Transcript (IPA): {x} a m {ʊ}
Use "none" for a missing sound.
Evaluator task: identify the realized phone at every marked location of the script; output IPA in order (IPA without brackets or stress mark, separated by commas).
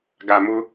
ɡ, ʊ